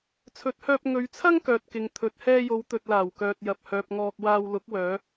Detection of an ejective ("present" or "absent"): absent